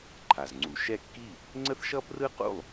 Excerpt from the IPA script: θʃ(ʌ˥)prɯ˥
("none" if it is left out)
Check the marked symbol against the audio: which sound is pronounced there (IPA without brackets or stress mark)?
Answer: ʌ˥